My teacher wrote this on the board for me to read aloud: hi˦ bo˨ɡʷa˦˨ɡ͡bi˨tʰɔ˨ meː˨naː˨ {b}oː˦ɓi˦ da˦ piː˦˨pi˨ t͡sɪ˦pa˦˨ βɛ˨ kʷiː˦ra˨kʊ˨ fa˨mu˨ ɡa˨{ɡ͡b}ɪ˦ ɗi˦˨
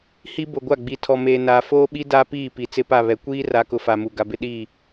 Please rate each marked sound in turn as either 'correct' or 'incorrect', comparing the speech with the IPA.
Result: incorrect: f, incorrect: b

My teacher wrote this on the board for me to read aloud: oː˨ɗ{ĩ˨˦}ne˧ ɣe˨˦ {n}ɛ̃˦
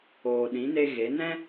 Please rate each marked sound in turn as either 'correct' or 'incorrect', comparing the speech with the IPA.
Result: correct, correct

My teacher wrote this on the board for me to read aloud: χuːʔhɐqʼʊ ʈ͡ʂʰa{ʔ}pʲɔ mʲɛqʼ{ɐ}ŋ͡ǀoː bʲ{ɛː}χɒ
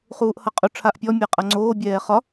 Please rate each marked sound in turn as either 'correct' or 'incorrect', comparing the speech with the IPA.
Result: correct, correct, correct

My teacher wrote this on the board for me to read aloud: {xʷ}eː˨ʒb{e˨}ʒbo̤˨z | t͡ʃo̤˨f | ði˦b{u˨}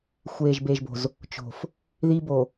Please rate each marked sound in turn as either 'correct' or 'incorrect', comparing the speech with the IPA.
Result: correct, correct, incorrect: o˨

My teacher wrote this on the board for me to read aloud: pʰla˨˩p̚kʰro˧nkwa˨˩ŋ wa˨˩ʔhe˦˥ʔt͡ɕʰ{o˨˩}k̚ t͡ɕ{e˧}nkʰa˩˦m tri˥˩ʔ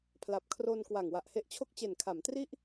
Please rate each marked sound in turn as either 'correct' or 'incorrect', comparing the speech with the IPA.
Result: incorrect: o˥˩, incorrect: e˨˩

